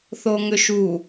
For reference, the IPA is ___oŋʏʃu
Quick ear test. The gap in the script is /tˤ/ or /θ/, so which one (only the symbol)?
θ